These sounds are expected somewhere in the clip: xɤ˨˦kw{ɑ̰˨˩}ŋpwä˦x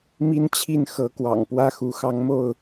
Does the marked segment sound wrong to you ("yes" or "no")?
no